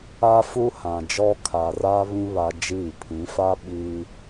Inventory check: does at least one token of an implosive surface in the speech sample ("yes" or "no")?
yes